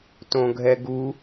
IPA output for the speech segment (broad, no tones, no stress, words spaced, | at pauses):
tõɡʱɛɡu